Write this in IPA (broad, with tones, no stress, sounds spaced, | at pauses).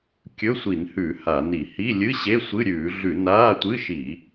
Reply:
kʲ ɵ˧˥˧ sʷ i˧˩˧ n h ʉ˧˩˧ h a˧˩˧ n i˧˩˧ h i˧˥˧ lʲ ɨ˧˥˧ ɕ e˧˥˧ sʷ ɨ˧˥˧ ɾʲ ʉː˧˩˧ ɮ ʉ˧˩˧ n aː˧˥˧ tʷ ɨ˧˥˧ ʃ i˧˩˧